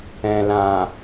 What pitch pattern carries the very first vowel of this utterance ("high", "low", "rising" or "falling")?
low